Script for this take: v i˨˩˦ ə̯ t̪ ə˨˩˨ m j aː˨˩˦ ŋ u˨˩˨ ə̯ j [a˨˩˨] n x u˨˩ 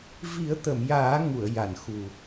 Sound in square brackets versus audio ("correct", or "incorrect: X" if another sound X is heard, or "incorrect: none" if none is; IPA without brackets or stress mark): correct